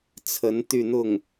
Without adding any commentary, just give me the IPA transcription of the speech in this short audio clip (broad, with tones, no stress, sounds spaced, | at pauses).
t͡sʰ ə˧˥ n t̪ y˥˧ n̪ ʊ˥˩ ŋ